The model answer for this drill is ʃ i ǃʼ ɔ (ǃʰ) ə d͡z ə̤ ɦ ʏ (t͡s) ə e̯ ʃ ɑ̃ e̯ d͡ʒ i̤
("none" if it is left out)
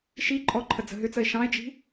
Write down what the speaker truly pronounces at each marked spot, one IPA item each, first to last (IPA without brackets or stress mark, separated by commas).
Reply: ǃʰ, t͡s